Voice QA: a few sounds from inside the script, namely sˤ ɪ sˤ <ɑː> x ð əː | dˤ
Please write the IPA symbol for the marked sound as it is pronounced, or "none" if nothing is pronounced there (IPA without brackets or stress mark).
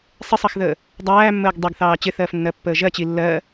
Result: ɑ